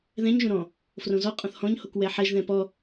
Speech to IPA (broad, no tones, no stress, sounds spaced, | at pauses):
ð ɛ̃ ɲ ʒ õ ɾ ɔ̃ | f r õ z ɔ qʼ ɔ̃ θ h ɔ̃ ɲ h o k w ɛ ħ ɛ ʒ ð ɛ̃ p ɔ